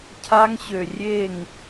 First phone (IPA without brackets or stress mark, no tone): cʰ